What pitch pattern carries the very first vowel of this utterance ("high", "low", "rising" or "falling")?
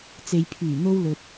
low